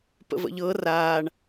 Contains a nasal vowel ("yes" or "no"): no